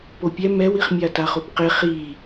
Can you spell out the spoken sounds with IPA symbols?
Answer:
p o pʲ ɛ m ɛ w i χ mʲ a t a χ o p q e χ i

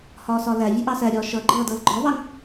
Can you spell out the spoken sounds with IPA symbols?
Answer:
h ɒː s ɒ l æ vʲ ʊ ʔ ɑ s æ ɾʲ ɒː ʃ ʌ ɡ͡ǃ ʌː d ʌː l ɡ͡ǃ ɒ v ɑ ŋ

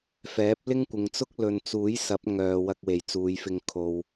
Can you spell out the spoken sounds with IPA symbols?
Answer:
f ɛː˨˥ p̚ l ɪ˥ ŋ kʷ ɪ˨ ŋ t͡s ʊ˥ k̚ l ɵ˨ n t͡s uː˨˥ j s ɐ˨˥ p̚ ŋ œː˨ w ɐ˧ k̚ w e˨˩ j t͡s uː˨˧ j f ɪ˧ ŋ kʰ o˨ w

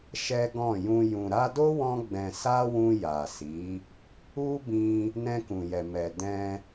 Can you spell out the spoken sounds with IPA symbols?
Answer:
ʃ ɛ˦ ɡ ɔ̃˦˨ j ũ˧ j ũ˨ ɾ a˧ d o˦ w ɔ̃˧ ɡ͡b ɛ̃˨ s a˧ w ũ˧ j a˨ s i˨˦ | u˦ b ĩ˧ | n ɛ̃˧ k ũ˨ j ɛ˨ m ɛ˨ d ɛ̃˧

